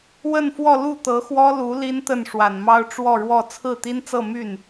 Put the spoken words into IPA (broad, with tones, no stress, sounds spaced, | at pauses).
w ə˥˧ n f w ɔ˥˧ l u˥˩ t̪ ɤ˧˥ x w ɔ˥ l u˧˥ l i˥ n t̪ ə˥˩ n ʂ w a˨˩ n m ɑ˥ ʊ̯ ʈ͡ʂ w ɔ˥˧ ɻ w ɔ˥˧ t͡sʰ ɹ̩˥˩ t̪ i˥ n t͡s ɤ˥˧ m y˥˩ n